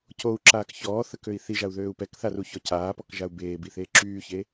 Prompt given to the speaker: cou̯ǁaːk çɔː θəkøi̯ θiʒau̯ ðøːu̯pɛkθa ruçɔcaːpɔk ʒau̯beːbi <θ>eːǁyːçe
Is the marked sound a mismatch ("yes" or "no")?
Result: no